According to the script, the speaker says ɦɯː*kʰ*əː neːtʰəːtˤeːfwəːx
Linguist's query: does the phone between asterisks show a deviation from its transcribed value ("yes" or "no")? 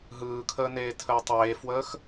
no